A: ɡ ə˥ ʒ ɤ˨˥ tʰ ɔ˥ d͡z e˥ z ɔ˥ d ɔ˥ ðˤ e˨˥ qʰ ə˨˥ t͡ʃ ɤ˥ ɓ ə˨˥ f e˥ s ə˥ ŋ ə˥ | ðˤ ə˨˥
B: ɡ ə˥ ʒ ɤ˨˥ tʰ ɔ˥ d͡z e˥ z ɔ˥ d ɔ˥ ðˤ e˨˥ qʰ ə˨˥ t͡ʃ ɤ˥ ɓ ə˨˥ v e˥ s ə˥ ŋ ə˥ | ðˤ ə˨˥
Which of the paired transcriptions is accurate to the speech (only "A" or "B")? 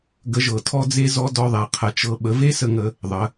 B